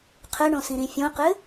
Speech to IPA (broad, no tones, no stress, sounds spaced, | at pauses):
qʰ ɨ ɳ õ s ĩ ɾ ĩ fʲ õ q ɨ